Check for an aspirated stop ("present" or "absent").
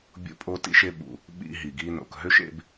absent